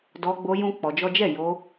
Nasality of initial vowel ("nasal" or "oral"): oral